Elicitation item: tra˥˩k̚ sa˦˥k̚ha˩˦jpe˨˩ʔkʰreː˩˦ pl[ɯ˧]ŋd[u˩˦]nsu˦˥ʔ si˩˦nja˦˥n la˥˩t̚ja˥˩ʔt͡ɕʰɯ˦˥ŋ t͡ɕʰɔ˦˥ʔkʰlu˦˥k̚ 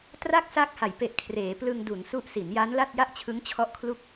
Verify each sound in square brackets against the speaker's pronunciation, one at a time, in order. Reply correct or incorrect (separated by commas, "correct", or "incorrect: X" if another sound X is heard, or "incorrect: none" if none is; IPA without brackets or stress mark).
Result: correct, correct